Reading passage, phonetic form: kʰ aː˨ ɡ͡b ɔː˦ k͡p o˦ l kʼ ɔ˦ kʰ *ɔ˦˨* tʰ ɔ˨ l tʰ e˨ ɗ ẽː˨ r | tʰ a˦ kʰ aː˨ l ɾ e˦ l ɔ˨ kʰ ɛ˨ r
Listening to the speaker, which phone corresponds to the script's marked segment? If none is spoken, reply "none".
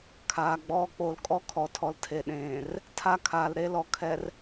ɔ˨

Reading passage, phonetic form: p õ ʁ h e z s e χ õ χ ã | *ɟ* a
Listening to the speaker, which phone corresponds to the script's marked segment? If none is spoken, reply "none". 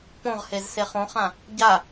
ɟ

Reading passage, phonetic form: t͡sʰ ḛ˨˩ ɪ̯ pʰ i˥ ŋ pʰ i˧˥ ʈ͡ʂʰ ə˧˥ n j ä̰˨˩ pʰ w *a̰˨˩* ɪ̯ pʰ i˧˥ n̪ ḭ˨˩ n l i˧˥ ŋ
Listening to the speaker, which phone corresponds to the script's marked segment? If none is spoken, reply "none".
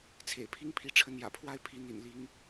a˥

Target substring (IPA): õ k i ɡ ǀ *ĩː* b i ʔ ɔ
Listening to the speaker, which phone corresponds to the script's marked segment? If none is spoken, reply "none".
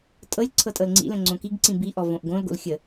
ĩ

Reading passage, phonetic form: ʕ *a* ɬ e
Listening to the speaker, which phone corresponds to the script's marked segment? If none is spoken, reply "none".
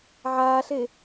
aː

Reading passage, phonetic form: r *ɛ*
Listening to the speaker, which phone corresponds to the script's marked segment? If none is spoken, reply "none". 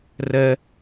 ɛ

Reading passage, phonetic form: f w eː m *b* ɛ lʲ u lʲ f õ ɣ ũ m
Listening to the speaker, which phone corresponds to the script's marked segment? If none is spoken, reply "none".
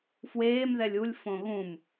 ð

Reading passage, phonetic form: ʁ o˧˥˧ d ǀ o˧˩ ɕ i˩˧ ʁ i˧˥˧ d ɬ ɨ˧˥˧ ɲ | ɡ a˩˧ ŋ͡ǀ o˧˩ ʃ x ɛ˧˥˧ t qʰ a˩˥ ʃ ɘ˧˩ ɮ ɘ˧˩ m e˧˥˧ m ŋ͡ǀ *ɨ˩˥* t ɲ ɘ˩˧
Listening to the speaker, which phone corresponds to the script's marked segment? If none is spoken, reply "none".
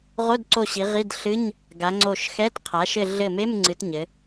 ɨ˩˧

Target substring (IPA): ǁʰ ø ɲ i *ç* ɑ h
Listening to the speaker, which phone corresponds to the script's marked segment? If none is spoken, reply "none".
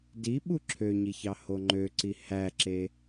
ç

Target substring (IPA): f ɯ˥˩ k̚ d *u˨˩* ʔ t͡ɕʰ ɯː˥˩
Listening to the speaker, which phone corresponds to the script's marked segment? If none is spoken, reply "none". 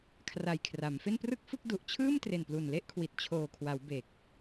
u˨˩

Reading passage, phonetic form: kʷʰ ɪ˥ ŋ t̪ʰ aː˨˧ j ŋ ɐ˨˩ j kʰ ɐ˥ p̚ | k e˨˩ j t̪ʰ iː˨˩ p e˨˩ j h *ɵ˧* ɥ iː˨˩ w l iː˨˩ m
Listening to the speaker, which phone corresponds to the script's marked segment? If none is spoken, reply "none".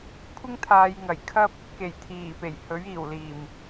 ɵ˨˥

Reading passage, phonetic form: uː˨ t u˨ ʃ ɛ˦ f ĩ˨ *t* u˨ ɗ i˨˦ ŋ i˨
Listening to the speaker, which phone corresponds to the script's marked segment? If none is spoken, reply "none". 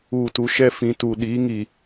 t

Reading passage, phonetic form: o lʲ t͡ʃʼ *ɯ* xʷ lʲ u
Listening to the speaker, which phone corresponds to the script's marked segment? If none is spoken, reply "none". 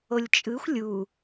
ɯ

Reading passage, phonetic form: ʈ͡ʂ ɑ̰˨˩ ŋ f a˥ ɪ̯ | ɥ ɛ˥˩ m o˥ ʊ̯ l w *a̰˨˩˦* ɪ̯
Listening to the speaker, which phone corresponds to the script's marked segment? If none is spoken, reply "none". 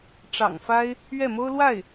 a˥˩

